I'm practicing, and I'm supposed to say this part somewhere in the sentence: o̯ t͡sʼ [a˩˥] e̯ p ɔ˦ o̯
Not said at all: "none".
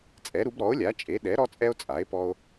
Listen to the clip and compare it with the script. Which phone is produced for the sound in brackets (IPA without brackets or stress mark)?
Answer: a˩˥